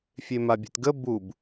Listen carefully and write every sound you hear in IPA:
fʲemabʲe̤tɡə bub

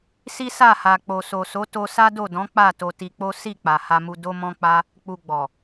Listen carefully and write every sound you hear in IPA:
si˦sa˦˨ha˨ k͡po˨so˨so˨˦ to˧sa˦do˦˨dɔ̃˨˦ k͡pa˦˨ to˧ti˧k͡po˦ si˦˨ k͡pa˨ha˧mu˧ do˦mɔ̃˦ k͡pa˦ | k͡pu˧ ɡ͡bɔ˨

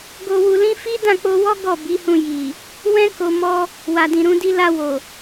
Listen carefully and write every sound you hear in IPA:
ɡo˧wu˧lĩ˦ fi˦dã˦˨k͡po˧wɔ˦ ɡɔ˦˨bi˨˦hũ˧ji˨ | wɛ̃˦ ko˧ mɔ˦ | wa˨dĩ˨ɾũ˧di˧ la˧wo˨

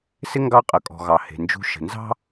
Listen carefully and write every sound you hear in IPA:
sɪ˥ŋɡɑ˦qʼə˩kʼɔ̤˩ ɣɑ˩he̤˩ nd͡ʒṳ˨ʃə̤˩nzɑ̤˦

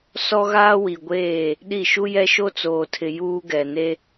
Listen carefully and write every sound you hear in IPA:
sɔ˦ɣaː˦wi˨ɡʷeː˦˨ | ɗi˦˨ ʃu˦jɛ˦ ʃo˦t͡soː˨tʰɪ˨ juː˦ɡɛ˨ ne˦

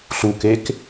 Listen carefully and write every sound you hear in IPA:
ɬukek

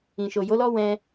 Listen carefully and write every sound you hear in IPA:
ĩ˨ ʃo˨ jo˨˦lɔ˦ wɛ̃˧

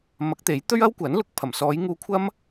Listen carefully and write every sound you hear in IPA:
mɐ˨˥k̚ t̪e˨˥jt̪ɵ˥ɥɐ˥w kʷɐ˨˥n lʊ˨˥k̚pʰɐ˨˩msɔː˨˧j ŋuː˧kʷʰɐ˥m

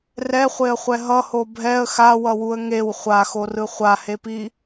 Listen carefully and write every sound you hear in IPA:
rɛχʷeə̯χʷɛ ɦʌho bʱɛə̯ xawʌwuə̯ ŋew χʷaxorɯ χʷahepi

